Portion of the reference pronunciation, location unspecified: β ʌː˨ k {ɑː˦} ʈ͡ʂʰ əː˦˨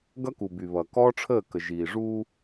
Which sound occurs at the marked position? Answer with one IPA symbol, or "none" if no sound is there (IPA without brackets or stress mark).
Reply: ɔː˦